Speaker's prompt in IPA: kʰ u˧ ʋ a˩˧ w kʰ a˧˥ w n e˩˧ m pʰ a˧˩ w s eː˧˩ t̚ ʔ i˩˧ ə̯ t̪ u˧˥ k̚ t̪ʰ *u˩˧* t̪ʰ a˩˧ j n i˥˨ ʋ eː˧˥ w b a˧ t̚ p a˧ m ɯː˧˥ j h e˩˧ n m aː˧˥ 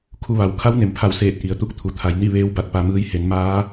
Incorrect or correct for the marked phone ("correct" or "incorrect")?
correct